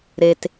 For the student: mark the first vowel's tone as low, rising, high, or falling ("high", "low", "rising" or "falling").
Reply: low